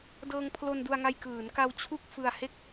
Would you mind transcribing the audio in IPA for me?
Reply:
d ɤː˧ ŋ pʰ l o˧ n d u˧ a̯ ŋ a˧ j k ɯː˩˦ n k a˧ w t͡ɕʰ u˥˩ k̚ f ɯ˧ a̯ h e˥˩ k̚

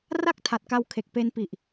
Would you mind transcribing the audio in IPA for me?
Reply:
r a˥˩ k̚ tʰ a˨˩ t̚ k a˧ w kʰ e˨˩ k̚ p e˧ n p i˨˩ ʔ

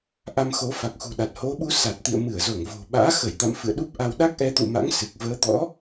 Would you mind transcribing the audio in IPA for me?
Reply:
ʔ a˧ m x o˨˦ f a˨˩ k̚ x ṳ˨˩ ɗ a˨˩ t̚ h o˨˦ ɓ u˨˦ s a˨˩ t̚ t̪ ḭ˧˨ ə̯ m ɨ˧˩ ə̯ z o˧˩ ŋ v o̤˨˩ ɓ a̰ː˧˥ x ə˧˩ j t̪ a̰˧˨ m f ɨ̰˧˨ ə̯ ɗ u˦˥ p̚ ʔ a˧ w ɗ a˦˥ k̚ ʔ ɛ˨˦ t̪ ṵ˧˨ m a̰˧˥ ŋ s ɨ˨˩ k̚ v əː˨˦ t̪ ɔ̰˧˥

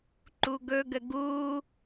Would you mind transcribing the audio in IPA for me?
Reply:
ǃ u ɡ ɵ ɡ ə ɡ u

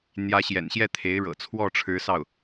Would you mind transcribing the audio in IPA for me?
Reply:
n̪ j ä˧˥ ɕ j ɛ̰˨˩ n ɕ j ɛ˥˩ t̪ʰ e˧˥ ɪ̯ ɻ ɤ̰˨˩ t͡sʰ w ɔ˥˩ ʈ͡ʂʰ ɻ̩˧˥ s ɑ˥˩ ʊ̯

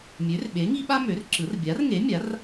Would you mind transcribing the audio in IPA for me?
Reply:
mʲ ø˨˥ r ɓ e˨˥ ŋ i˥ ɓ a˥ m ø˨˥ r ǁ ɯ˨˥ r bʲ a˨˥ r ŋ e˨˥ mʲ a˨˥ r

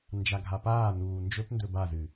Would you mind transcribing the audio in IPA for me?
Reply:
n d͡ʒ a ɡʱ a p aː n uː n d͡ʒ ɵ p n d ɵ b a z ɨ

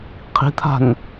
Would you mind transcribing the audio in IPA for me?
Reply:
qʰ i̤ t̪ʰ a̤ n

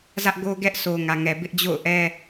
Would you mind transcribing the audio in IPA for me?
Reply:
z ä˦ ʔ ɡ o˦ ɡ ɛ˦ ʔ sʰ o˨ ŋ ä˨ ŋ ɛ˨ b ɪ˦ ʔ d͡ʑ o̰˦˨ ʊ̯ ʔ ɛ˦

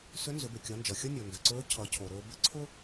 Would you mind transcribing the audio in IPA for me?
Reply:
s ʏ˧˥ n z ʏ˩˧ b ʏ˩ kʲ ʌ˩˧ n d͡ʒ ʌ˩ xʲ ʌ˥ nʲ o˩ n d ʏ˩ ǀ ɵː˧˥ cʰ ʌ˩˧ cʰ o˩ ɾ ɵː˧ b ʏ˥ ǀʰ ʊ˥

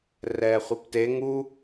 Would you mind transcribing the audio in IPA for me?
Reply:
r ɛː χʷ i p t e ŋ u

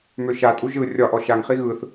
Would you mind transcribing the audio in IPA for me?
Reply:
m ø ʃ a tʼ u ʒ ɯ rʲ ɒ ʔ ɔ ʃ a ŋ χ i ɣ ɯ θ

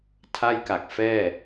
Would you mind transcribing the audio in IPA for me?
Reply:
tʰ a˥˩ j k a˨˩ k̚ f ɛː˥˩

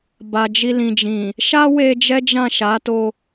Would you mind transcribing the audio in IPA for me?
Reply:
b a˨ d͡ʒ i˧ l ĩ˨ d͡ʒ ĩ˨ | ʃ a˦ w e˧ d͡ʒ ɛ˦ d͡ʒ ã˦˨ ʃ a˨˦ t o˧

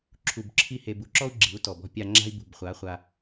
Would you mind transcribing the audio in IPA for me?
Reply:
ǁʰ u˨ b ǁʰ i˧ h e˨ b u˨ ǁ ɔ˦ u̯ ɡ͡ǁ i̤˨˦ u̯ t ɔ˨ b ɔ̤˧ pʲ a˧ ŋ͡ǁ a̤˦ i̯ b ṳ˨ b χʷ a˨˦ χʷ a˧

